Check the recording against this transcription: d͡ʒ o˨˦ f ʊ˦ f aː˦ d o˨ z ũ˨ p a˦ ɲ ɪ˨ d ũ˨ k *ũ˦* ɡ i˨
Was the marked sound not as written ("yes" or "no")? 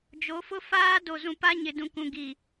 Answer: yes